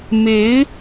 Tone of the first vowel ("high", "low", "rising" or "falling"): rising